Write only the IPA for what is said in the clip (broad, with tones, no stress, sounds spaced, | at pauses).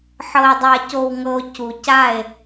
ħ ɤ˨ e̯ dˤ a˨ c o˨ w ŋ ɤ˨ o̯ c u˨ c a˦˨ e̯